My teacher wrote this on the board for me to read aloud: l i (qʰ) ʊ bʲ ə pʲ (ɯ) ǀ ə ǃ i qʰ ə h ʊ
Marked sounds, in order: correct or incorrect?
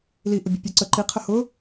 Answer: incorrect: ʔ, incorrect: u

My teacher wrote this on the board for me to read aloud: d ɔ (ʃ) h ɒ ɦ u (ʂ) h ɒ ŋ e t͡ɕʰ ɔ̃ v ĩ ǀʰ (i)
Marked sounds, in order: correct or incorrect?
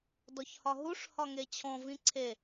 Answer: incorrect: ç, correct, incorrect: e

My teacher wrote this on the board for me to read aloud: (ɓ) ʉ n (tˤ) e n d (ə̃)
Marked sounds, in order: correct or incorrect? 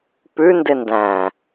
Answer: incorrect: p, incorrect: d, incorrect: æ̃

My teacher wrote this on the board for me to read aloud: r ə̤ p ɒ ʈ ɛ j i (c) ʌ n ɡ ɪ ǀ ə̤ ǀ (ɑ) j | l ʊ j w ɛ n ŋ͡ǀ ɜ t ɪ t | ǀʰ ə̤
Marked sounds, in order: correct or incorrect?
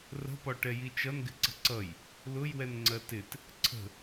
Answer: incorrect: t͡ʃ, incorrect: ʌ

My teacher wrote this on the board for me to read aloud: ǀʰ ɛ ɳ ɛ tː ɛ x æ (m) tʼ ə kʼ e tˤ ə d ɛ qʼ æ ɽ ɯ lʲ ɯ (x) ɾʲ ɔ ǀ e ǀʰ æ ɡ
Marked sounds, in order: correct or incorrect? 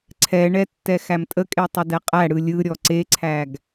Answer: correct, incorrect: none

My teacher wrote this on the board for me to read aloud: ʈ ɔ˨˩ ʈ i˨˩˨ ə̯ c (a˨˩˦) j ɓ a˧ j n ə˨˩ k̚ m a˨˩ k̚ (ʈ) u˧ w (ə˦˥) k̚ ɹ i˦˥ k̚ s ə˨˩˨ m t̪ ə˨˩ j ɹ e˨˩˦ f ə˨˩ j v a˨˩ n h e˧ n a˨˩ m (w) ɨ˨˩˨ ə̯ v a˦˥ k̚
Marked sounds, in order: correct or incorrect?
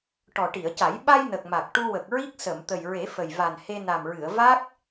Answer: correct, correct, incorrect: ə˨˩, incorrect: ɹ

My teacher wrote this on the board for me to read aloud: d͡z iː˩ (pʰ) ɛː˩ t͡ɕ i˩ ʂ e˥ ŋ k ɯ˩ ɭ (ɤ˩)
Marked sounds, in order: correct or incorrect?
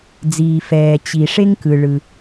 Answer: incorrect: f, incorrect: ɯ˩

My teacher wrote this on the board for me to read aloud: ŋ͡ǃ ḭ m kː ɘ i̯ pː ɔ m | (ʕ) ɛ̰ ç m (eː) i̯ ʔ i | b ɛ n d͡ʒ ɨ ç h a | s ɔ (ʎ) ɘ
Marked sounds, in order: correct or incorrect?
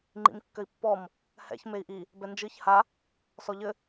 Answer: incorrect: h, incorrect: e, correct

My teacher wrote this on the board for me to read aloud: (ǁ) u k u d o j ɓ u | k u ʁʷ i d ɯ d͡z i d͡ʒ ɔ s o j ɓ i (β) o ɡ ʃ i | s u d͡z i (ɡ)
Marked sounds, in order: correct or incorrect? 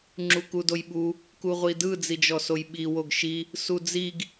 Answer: incorrect: ŋ͡ǁ, incorrect: w, correct

